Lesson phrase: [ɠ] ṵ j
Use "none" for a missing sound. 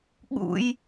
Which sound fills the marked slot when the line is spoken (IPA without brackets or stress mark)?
ɠ